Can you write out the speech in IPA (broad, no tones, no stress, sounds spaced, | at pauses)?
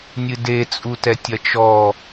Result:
nʲ ɨ d e t͡sʼ u t ɛ tʲ ɐ t͡ʃ ɔ